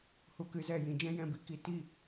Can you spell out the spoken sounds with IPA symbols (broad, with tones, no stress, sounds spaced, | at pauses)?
h u˧ k ɨ˧ z ɛ˦˨ j ĩ˧ d͡ʒ ɛ̃˦ j ɛ̃˧ b i˨˦ k i˨˦ t i˦˨